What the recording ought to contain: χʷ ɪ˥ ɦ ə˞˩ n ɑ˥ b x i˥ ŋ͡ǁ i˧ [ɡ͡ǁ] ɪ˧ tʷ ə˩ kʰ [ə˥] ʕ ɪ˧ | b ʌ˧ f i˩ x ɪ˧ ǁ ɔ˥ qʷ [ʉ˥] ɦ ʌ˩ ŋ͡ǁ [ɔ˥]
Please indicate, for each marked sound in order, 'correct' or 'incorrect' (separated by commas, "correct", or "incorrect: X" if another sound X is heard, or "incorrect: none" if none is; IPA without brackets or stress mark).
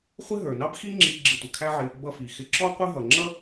correct, incorrect: æ˥, incorrect: ə˥, incorrect: ʌ˥